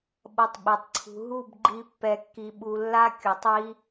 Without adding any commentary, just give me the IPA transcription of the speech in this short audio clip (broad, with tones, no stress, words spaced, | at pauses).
ɓʌ˧tˤɓi˨tˤǀʰṳ˧ ɦu˦˨bɡ͡ǃi˧ pːɛ˧kːi˧ɓu˧ lːa˦kʲu˨tˤ ji˦